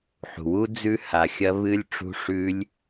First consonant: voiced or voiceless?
voiceless